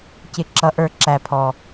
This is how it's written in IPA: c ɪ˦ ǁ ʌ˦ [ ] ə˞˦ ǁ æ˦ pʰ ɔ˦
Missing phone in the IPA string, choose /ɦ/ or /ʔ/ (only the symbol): ʔ